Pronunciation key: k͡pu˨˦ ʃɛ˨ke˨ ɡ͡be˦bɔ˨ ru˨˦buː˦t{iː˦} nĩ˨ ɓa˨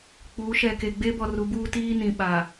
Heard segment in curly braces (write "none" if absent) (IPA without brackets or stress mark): iː˦